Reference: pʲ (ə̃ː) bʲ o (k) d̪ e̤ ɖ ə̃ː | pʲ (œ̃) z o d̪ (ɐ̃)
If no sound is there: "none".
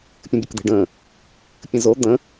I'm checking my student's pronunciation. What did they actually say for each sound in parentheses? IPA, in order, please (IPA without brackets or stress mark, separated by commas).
ə̃, k, ə̃, ə̃